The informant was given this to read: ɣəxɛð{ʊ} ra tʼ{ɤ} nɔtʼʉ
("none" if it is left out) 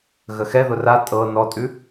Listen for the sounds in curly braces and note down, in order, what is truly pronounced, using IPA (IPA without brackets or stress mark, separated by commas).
ʊ, ɤ